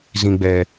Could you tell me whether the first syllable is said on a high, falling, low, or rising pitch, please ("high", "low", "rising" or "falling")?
low